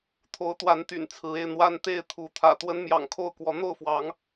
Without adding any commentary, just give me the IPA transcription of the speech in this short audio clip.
t̪ʰ o˨˦ ʊ̯ t̪ w a˨˦ n t̪ y̰˨˩ n t͡sʰ ɹ̩˨˦ e˧ ɪ̯ n̪ w a˦ n t̪ e˥˨ ɪ̯ t̪ʰ u˨˦ t̪ʰ ä̰˨˩ t̪ w ə˦ n m j ɑ̰˨˩ ŋ kʰ o˥˨ ʊ̯ k w ɔ˨˦ n̪ o˥˨ ʊ̯ f w ɑ˨˦ ŋ

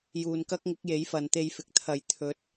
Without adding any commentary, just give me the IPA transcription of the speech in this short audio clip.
j uː˨ n k ɐ˥ k̚ ŋ ɪ˨˥ k̚ j e˨˥ j f ɐ˨ n t̪ e˧ j f ɪ˨ k̚ t̪ʰ ɐ˨ j t̪ʰ ɵ˨˥ t̚

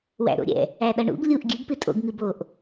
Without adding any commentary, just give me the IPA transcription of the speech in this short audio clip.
w æ̰ ɾ o̰ ɾʲ ɛ̰ | æ ɗ ʌ ɳ ṵ ɡ lʲ u ʔ ɡʲ ɨ ɡ p ɨ tʼ o̰ ɡ ŋ ɨ b o ʔ

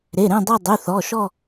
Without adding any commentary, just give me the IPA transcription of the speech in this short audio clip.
ɾ e˩˧˩ ɾ ẽ˦˨ dˤ o˦˨ dˤ y˩˧˩ θ ɔ˩˧˩ ʃ ɔ˦˨

